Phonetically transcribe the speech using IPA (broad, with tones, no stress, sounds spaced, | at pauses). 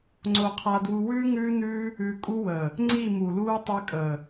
ŋ͡ǀ o˧ qʰ a˧ d w u˧ w ʉː˦ ŋ ʉː˦ n ʉː˦ | ʉ˧ kʼ u˧ w əː˨ | ŋ͡ǀ i˦˨ m u˨ l uː˦ tˤ ʉ˧ kʼ əː˨